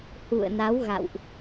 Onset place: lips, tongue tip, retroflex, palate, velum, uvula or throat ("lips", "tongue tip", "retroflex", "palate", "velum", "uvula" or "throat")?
throat